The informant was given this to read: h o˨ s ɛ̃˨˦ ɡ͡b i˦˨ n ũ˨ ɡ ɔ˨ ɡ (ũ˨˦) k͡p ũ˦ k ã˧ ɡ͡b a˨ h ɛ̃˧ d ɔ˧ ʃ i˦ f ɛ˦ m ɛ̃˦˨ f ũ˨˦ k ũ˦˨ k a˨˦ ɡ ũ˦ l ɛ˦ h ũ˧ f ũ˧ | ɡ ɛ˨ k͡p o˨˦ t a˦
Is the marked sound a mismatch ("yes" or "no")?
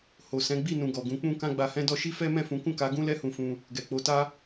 no